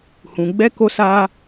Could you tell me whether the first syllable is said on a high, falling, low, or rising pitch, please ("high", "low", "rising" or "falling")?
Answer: low